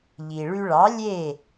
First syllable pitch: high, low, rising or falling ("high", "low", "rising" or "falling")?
low